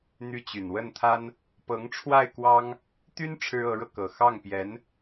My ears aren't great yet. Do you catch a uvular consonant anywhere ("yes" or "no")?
no